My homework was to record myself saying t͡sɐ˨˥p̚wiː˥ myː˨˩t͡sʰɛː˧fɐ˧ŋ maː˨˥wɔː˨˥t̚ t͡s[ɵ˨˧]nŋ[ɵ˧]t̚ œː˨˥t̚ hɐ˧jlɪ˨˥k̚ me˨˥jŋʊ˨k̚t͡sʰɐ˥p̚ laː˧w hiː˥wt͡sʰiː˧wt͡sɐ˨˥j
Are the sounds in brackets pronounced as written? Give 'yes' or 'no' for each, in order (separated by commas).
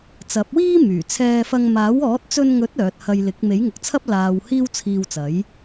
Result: no, no